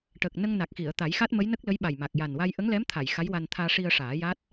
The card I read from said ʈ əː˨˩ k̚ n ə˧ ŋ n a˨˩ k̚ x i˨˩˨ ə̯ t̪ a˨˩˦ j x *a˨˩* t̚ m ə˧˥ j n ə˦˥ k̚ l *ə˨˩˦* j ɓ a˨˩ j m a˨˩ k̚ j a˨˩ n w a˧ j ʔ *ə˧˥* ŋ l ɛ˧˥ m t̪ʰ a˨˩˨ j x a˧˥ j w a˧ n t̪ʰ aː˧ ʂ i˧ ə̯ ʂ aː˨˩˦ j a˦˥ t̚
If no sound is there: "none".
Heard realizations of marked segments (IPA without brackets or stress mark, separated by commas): a˦˥, ə˧˥, ə˧˥